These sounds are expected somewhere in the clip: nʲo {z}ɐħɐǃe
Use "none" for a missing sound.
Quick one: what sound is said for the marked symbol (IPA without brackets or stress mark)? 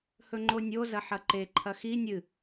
z